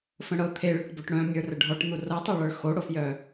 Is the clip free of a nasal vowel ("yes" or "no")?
no